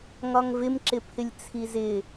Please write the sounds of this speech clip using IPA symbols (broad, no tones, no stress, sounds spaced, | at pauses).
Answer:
ŋ ɒ ŋ v ɪ m ǁ ɪ pʰ ɪ lʲ t͡sʰ i z ɪ